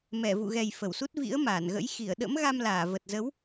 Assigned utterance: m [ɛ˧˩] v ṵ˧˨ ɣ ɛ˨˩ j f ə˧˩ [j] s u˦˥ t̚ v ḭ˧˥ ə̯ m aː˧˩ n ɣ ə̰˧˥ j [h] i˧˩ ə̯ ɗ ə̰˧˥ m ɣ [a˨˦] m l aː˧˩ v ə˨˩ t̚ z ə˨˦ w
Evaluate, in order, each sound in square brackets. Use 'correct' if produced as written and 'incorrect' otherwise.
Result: correct, incorrect: w, incorrect: x, incorrect: a˧

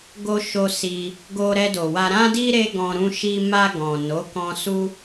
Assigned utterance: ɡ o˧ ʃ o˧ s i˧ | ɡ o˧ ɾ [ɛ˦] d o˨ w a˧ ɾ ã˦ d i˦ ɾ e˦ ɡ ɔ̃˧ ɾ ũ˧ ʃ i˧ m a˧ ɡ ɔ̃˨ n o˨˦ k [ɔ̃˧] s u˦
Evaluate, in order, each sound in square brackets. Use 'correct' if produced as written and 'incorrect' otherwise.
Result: incorrect: ɛ˧, correct

